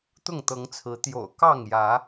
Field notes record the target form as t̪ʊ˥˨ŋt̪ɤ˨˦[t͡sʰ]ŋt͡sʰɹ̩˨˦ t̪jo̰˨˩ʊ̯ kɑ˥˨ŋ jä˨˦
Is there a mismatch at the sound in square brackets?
yes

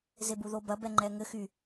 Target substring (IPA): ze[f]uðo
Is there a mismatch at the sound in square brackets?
yes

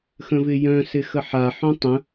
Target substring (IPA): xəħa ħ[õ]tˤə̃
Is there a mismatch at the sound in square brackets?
no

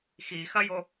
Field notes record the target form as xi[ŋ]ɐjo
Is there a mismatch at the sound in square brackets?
yes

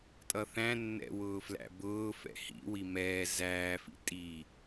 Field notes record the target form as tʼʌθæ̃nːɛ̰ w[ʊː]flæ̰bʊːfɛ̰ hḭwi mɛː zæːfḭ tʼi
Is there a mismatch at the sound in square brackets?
no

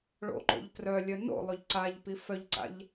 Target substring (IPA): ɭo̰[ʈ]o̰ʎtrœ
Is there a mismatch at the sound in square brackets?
yes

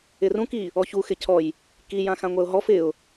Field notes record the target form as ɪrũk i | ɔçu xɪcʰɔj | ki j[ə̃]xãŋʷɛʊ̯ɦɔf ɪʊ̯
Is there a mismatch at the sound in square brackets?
yes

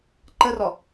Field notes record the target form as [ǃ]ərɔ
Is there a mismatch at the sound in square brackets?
no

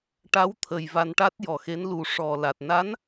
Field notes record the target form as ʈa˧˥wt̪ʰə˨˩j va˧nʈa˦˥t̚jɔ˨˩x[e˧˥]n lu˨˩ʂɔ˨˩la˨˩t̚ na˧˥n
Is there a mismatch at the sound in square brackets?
no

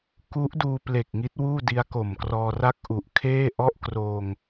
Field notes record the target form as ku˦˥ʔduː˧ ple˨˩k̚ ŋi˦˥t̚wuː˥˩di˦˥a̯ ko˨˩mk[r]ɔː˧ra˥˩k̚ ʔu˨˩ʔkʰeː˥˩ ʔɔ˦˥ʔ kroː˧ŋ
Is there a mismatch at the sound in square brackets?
no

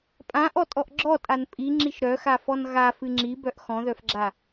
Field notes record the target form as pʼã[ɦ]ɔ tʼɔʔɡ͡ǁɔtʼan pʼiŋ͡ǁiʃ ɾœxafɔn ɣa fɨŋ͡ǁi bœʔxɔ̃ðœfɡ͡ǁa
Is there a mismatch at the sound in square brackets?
yes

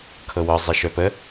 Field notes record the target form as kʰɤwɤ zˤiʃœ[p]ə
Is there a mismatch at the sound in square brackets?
no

